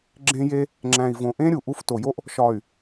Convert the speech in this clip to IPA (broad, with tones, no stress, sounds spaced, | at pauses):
ɡ͡ǁ ẽ˦ j e˦ | ŋ͡ǁ æ̃˨ i̯ v õ˨ ʔ ẽ˦ ɾʲ u˨ ʔ u˦˨ f t o˨ j o˦ ʔ | ʃ ɒ˨ y̯